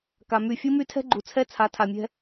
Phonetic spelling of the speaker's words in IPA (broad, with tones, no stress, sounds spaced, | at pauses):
k a˨ m y˦˨ fʲ u˦ m y˦ tʰ ɛ̤˦ ɡ͡ǃ u˨ t͡sʰ ɛ˦ t͡sʰ a˨˦ tʰ a˨ mʲ ɛ̤˦